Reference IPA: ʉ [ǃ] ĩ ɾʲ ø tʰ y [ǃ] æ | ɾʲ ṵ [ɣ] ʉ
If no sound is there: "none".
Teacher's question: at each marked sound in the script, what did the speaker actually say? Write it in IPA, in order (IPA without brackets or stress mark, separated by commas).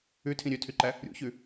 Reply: tʰ, ǃ, ç